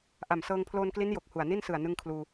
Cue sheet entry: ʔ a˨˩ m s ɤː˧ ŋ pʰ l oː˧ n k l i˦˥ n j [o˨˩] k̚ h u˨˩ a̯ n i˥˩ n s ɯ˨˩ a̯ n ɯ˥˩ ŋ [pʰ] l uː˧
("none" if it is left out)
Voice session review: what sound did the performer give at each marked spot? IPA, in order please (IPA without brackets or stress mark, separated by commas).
o˨˩, kʰ